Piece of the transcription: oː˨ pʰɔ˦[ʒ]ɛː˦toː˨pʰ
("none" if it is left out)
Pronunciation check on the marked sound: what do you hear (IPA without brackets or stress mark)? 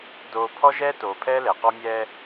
ʒ